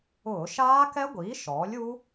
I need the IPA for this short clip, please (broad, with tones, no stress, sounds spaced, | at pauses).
ʊː˧˩˧ ʃ aː˦˥ k ɛ˦˥ ɡʷ iː˩˥ ʃ ɔː˩˥ lʲ u˦˥